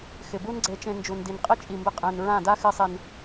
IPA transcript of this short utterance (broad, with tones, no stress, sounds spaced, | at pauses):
x ɪ˨ b u˦ n ɡ͡ǀ e˧ t͡ʃ ẽ˧ n d͡ʒ u˨ n d i˨ n qʼ i˦ t͡ʃʼ i˨ m b ɪ˧ qʼ ẽ˨ n ɹ ã˦˨ d a˦ x ɪ˧ sˤ i˨ n